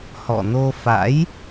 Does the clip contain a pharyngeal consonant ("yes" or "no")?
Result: no